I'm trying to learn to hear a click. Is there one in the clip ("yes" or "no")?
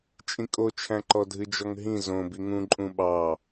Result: yes